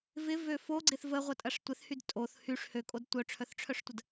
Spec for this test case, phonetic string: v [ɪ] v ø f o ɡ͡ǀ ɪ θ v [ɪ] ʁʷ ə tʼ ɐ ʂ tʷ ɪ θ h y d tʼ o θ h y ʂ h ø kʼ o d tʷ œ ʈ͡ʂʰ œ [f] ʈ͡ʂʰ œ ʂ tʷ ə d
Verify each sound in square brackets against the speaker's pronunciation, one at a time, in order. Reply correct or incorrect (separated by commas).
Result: correct, incorrect, incorrect